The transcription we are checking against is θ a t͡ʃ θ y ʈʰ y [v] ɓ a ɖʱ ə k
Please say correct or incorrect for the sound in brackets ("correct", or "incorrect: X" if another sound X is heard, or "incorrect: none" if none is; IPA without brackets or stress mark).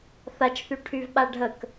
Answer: correct